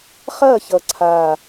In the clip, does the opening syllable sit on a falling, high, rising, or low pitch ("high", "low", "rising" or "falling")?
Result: falling